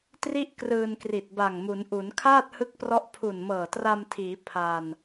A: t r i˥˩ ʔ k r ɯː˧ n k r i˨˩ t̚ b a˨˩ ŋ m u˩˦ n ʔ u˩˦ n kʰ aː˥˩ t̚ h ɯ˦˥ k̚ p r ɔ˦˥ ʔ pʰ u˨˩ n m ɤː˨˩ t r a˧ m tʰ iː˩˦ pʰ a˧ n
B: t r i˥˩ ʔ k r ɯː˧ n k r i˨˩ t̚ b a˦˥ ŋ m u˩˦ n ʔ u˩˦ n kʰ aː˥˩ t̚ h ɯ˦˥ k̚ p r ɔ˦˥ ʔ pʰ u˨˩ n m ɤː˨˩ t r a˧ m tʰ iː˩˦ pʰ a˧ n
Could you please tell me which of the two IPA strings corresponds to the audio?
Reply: A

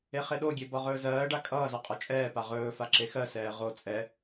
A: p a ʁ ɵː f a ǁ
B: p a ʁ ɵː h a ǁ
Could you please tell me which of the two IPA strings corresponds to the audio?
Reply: A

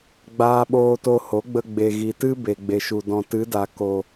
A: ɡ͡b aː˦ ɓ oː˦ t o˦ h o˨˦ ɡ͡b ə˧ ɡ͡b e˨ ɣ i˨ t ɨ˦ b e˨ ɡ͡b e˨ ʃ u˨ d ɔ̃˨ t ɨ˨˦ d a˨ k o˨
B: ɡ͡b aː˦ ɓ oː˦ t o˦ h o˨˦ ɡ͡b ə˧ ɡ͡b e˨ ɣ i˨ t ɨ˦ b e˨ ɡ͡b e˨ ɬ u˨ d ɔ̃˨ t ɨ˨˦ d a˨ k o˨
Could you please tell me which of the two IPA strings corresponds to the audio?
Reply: A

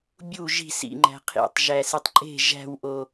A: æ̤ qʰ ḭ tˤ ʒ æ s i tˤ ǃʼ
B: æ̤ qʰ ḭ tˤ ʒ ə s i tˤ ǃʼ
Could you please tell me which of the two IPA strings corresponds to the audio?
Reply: A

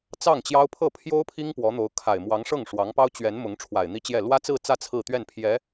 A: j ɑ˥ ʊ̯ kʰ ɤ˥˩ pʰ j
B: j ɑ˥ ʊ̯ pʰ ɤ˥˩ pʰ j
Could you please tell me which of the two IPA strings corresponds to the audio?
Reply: B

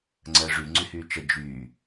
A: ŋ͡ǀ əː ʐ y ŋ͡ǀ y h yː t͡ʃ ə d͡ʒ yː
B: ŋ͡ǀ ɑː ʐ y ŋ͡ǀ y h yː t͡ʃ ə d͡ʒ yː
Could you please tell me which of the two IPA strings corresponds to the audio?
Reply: A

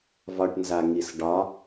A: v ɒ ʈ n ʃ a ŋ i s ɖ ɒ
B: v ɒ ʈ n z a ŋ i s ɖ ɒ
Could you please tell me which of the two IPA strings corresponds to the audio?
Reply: B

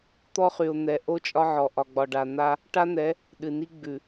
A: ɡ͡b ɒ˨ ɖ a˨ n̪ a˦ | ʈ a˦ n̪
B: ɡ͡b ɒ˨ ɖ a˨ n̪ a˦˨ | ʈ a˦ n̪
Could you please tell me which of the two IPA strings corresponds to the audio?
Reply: A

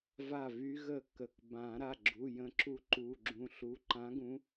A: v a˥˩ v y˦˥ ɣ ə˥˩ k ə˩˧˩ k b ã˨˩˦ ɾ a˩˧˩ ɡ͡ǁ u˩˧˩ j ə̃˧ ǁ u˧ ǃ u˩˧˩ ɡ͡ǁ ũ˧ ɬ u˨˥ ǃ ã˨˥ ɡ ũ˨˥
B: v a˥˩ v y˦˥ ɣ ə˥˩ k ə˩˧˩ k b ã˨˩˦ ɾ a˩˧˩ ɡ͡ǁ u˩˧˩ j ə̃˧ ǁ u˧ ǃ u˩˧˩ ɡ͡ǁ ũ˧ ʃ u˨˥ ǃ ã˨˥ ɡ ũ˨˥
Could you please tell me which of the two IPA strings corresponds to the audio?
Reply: A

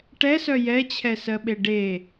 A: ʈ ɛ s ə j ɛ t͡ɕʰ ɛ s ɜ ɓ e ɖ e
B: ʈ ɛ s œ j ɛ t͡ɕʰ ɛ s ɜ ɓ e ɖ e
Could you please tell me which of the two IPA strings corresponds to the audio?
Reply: B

